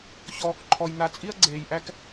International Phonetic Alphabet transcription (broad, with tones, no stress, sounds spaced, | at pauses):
ç ɔː˧ k ǃʰ ɔ˧ j n̪ a˧ t͡sʼ i˦ ɐ̯ ɡ͡ǀ eː˧ j ʔ æ˦ k